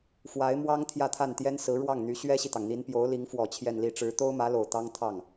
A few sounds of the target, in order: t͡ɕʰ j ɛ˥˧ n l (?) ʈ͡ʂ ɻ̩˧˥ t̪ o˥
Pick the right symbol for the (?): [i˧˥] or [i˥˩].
i˥˩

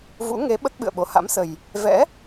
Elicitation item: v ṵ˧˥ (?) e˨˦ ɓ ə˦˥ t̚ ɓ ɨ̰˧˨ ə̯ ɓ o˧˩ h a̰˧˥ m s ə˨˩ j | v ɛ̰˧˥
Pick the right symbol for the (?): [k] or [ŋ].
ŋ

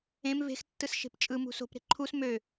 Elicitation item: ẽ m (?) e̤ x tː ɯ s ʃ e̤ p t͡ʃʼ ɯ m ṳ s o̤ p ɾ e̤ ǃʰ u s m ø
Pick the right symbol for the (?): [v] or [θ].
v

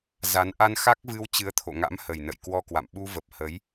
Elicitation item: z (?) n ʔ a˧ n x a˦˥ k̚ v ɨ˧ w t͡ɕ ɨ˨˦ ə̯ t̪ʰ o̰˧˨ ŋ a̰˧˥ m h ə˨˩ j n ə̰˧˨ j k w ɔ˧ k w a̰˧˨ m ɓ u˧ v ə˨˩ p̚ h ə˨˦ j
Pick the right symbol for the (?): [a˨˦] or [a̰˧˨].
a˨˦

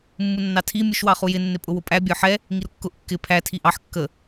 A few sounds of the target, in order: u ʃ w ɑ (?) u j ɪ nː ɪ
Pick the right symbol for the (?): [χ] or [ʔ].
χ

